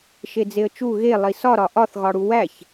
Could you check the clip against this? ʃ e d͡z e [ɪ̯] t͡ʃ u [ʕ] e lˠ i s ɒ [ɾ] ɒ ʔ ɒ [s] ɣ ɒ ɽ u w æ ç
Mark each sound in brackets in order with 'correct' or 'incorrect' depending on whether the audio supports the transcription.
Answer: incorrect: ə̯, incorrect: ɣ, correct, incorrect: θ

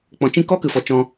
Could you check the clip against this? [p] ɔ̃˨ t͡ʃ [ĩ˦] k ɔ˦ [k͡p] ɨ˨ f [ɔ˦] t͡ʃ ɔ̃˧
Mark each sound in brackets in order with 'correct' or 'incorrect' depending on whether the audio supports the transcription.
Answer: incorrect: k͡p, correct, incorrect: k, incorrect: ɔ˨

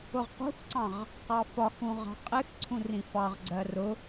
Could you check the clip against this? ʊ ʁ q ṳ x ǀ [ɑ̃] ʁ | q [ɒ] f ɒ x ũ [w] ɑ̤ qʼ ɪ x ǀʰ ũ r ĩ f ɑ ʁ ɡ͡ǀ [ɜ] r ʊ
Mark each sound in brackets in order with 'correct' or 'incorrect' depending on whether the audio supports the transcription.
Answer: correct, incorrect: ɑ, incorrect: ʁ, correct

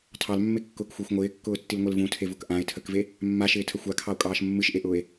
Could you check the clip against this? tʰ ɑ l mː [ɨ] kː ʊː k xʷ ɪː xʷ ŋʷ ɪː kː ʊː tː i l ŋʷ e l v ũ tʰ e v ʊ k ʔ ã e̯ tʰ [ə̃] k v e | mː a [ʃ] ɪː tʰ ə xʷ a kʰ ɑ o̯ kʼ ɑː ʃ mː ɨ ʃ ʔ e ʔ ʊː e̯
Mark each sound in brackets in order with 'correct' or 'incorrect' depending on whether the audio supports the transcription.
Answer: incorrect: e, incorrect: ə, correct

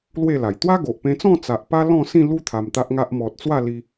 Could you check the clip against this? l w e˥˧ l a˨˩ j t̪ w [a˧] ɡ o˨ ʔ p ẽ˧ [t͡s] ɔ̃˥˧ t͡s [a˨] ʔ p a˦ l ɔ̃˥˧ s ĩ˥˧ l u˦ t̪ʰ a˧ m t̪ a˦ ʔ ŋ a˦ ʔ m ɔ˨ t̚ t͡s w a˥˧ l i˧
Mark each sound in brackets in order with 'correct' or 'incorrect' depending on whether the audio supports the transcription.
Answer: incorrect: a˦, correct, correct

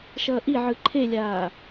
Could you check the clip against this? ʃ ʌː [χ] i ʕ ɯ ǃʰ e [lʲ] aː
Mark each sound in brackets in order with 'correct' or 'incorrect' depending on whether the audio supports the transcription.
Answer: incorrect: ʔ, correct

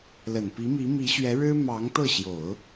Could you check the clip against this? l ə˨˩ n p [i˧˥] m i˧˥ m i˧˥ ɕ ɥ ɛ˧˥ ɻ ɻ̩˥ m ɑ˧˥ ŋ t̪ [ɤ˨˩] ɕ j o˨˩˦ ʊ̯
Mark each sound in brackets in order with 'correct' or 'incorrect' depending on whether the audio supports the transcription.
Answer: correct, incorrect: ɤ˥˩

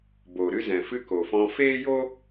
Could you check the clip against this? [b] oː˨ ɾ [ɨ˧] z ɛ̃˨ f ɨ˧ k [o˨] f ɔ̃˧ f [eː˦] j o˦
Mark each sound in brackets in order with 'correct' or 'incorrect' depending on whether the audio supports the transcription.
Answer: correct, correct, correct, correct

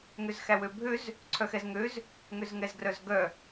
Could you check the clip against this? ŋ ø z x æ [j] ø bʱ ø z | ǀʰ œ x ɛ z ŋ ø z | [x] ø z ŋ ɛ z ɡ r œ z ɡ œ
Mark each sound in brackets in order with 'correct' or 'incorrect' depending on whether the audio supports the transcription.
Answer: incorrect: w, incorrect: ŋ

